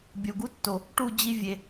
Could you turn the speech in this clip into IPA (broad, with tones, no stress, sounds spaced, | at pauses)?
bʲ o˨ ɡ u˦ tː o˨ | ʈ u˦˨ d͡ʑ i˧ vʲ e˨